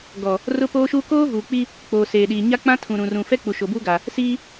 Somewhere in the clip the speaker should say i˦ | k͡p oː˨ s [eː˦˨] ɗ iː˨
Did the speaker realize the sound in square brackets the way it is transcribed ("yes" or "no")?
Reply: no